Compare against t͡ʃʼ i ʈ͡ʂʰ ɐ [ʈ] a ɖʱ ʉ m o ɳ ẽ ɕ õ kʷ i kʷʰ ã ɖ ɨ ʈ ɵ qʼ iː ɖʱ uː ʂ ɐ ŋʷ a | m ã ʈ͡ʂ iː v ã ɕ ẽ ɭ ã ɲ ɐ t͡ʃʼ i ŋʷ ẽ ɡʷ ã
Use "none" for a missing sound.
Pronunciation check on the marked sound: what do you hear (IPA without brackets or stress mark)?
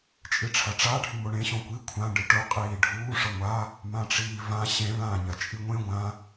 ʈ͡ʂ